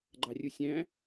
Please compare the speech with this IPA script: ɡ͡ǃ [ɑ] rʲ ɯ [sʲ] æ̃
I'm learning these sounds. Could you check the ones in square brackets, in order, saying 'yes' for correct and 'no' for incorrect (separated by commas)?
yes, yes